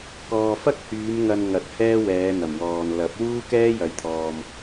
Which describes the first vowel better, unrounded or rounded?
rounded